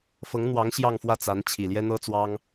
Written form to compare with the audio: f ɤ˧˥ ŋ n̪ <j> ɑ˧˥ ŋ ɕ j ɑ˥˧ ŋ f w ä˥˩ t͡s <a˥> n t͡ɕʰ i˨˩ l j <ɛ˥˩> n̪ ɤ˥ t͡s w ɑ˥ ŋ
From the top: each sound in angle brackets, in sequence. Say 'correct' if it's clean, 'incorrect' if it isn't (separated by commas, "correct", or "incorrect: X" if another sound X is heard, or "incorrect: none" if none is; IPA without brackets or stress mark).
incorrect: w, incorrect: a˧˥, incorrect: ɛ˥